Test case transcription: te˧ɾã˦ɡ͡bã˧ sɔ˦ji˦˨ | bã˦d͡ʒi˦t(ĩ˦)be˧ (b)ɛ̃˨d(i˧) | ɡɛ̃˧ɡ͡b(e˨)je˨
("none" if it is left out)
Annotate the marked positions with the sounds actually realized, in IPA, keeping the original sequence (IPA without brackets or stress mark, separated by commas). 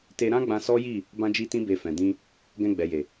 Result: ĩ˦, f, ĩ˧, ɛ˨